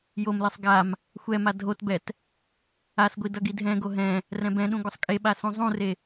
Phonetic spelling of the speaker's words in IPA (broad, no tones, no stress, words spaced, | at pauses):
jomlesˤ ɡam | xʷɛma dʱotbɛt | asɡʷi dʌɡidʱɛ̃ɡo ɦɛ̃ | rɛ̃bɛ̃ɗũ ɡʷʌsˤkʼeɓa sũzˤũre